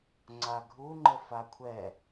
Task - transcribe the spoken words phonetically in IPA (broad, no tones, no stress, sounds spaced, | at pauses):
ŋ͡ǀ a ɡʱ u ŋ͡ǃ ə f a kʷʰ ɛ